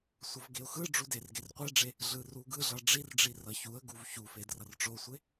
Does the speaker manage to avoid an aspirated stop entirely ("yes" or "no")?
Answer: yes